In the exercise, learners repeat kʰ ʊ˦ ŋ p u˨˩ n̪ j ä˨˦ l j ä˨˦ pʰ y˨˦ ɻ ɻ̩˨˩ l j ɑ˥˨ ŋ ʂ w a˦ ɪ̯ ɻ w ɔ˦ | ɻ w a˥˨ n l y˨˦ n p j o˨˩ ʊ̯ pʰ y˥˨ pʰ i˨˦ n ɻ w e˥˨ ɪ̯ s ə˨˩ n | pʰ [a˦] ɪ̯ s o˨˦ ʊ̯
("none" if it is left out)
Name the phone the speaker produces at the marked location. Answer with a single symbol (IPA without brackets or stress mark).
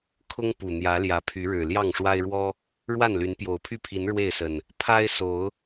a˦